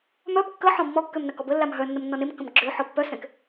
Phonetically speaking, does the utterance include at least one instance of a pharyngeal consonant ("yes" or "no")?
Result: yes